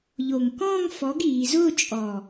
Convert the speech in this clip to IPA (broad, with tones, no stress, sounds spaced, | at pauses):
ʎ o˨˩ ŋ k ɔ̃ː˥˧ ŋ f ɔ˨˥ ɡ iː˩˧ z ʊː˥˧ t͡ʃʼ ɔ˨˩